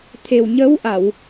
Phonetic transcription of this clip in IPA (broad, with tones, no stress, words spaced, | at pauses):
t̪ʰe˨˩wɲə˧˥wʔa˨˩˨w